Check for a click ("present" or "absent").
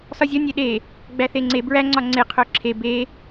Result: present